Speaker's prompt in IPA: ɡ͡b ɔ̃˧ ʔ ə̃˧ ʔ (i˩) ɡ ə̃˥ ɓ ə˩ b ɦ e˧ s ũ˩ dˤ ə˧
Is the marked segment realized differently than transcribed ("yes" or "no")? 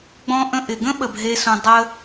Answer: yes